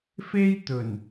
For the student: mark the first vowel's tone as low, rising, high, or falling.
high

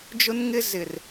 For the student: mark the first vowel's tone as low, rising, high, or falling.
high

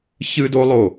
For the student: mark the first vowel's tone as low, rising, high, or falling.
high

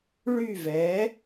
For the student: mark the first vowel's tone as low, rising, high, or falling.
falling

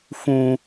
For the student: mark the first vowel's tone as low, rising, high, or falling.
high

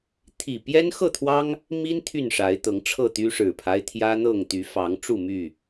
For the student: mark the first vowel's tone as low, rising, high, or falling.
low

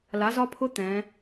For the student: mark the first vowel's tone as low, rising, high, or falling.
rising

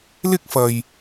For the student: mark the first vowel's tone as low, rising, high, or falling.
high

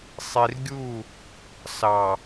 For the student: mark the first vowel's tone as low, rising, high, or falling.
low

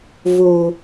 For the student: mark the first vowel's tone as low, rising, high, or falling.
low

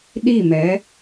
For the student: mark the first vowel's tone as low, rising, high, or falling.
falling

